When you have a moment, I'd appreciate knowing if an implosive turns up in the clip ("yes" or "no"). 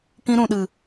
yes